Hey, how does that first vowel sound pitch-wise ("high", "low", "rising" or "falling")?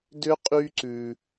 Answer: high